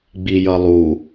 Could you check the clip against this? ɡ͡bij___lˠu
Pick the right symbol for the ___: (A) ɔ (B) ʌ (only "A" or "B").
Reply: B